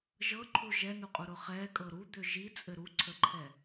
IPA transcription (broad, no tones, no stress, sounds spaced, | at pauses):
ʒ ɤ ǃʰ u ʒ ɛ n u qʼ u ɾ ʊ χ ɛ kʼ ɤ ɾ u d̪ ʏ ʒ i t͡sʼ ɘ ɾ u ǀʰ ə ǃʰ ɛ